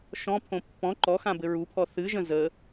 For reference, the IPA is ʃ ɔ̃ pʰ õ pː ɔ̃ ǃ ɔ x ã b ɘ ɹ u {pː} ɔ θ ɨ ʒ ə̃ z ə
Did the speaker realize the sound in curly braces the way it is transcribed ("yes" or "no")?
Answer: no